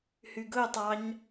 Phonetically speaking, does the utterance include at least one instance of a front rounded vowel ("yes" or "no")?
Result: yes